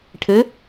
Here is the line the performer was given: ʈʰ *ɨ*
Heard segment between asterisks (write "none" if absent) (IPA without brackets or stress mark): ɨ